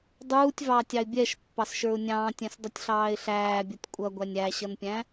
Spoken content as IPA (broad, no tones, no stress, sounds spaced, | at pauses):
dˤ uː tʲ v ɑː tʲ ɑ ɪ̯ bʲ ɛ ʃ pː ɑ s ʃ ə˞ ʊ̯ nʲ ɑ̃ː tʲ ɛ̃ s dˤ ʌ tʲ ɬ ɑː ɪ̯ ɬ æː bʲ ʌ tʲ kʷʼ ʌ ɡʷ æ nʲ æ ɕ ʌ n pʲ æ̃